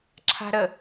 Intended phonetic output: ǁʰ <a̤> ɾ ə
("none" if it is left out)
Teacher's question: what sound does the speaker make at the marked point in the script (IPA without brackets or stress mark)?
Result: a̤